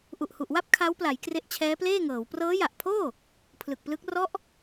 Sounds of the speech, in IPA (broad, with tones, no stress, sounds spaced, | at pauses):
ʔ u˨˩ ʔ h u˨˩ ʔ w a˥˩ p̚ kʰ a˦˥ w p l a˩˦ j k r e˦˥ ʔ t͡ɕʰ ɛː˦˥ p l eː˥˩ ŋ ɤː˩˦ w p r ɤː˦˥ j a˨˩ ʔ pʰ oː˥˩ | pʰ l ɯ˨˩ k̚ p l ɯ˦˥ k̚ r ɔ˦˥ ʔ